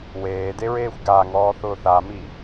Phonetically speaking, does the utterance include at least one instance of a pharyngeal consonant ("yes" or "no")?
no